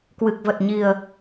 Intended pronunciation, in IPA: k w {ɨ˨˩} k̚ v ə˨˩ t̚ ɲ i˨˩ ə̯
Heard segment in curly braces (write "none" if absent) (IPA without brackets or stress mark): ɨ˨˩